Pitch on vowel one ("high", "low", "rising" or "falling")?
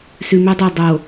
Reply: low